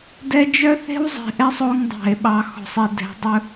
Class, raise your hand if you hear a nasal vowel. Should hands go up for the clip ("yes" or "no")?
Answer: no